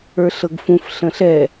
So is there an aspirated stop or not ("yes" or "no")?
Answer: no